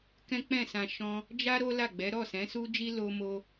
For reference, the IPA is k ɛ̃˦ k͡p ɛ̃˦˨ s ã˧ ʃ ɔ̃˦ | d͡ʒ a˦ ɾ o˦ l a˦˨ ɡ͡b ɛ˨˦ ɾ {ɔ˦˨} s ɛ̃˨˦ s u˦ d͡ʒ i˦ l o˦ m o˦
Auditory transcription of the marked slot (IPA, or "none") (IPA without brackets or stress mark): ɔ˦˨